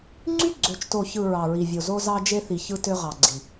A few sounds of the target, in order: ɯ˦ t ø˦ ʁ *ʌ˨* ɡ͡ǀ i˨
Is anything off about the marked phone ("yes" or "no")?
yes